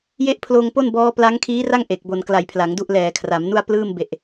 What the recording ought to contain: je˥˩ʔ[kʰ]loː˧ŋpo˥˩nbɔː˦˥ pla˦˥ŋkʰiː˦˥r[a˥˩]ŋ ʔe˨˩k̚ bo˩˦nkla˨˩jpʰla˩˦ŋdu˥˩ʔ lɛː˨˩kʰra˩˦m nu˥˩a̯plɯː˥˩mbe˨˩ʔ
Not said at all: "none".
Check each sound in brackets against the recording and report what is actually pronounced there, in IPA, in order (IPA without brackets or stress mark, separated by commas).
pʰ, a˥˩